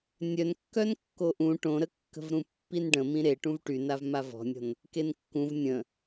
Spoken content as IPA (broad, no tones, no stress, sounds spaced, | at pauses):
nʲ œ n kː œ n kː o ʔ ũ ʈ õ ɾ ə kː ə̤ v ɾ ũ pː i n ɖ ə̃ m ĩ ɾ e ʈ ũ v ʈ y n a v m a v ɔ̤ nʲ ɔ̤ n | k e n kː ũ v nʲ ə̃